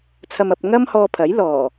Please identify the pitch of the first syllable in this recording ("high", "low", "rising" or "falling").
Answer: low